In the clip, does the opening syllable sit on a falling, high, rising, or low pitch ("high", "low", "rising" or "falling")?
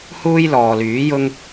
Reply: high